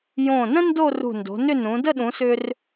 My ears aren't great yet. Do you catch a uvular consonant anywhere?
no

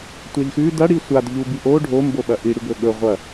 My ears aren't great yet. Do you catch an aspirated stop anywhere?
no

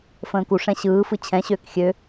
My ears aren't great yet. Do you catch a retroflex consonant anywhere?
yes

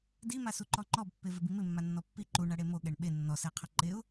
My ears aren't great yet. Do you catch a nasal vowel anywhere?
no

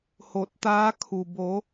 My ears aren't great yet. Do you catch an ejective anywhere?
no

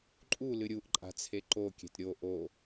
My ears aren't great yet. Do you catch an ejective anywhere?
yes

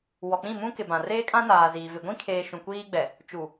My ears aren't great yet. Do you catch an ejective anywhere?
yes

